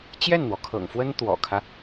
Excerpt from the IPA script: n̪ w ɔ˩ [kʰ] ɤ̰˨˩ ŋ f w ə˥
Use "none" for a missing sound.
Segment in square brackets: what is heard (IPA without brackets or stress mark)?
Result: kʰ